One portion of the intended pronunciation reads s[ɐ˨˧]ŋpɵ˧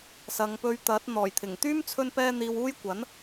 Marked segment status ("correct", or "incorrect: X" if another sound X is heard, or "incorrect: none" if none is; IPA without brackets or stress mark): correct